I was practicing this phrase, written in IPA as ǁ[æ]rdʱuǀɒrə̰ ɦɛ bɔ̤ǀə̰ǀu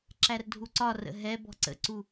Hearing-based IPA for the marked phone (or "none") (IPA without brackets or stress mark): æ